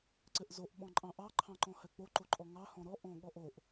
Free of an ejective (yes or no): no